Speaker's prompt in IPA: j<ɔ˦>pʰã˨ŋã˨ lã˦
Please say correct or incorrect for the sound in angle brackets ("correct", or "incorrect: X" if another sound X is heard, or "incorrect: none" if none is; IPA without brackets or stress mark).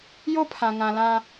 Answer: incorrect: o˦